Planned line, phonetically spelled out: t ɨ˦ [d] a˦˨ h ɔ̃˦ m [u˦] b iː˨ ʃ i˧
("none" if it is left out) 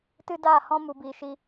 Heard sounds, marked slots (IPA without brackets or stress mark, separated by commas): d, u˨